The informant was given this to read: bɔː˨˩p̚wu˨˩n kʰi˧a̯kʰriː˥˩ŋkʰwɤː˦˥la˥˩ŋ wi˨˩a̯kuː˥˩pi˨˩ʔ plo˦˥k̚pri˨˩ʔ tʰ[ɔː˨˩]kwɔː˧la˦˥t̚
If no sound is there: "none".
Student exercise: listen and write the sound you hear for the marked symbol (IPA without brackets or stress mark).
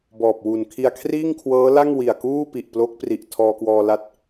ɔː˧